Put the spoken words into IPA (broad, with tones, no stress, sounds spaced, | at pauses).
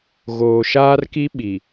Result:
ɣ oː˨ ʃ aː˦ r k i˦ ɓ i˨